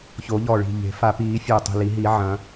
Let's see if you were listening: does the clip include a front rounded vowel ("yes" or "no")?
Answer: no